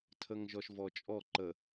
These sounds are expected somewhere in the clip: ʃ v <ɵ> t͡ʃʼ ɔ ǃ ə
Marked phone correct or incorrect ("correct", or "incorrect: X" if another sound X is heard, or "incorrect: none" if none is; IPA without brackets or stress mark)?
incorrect: ɔ